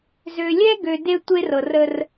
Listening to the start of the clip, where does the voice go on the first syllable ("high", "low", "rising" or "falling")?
low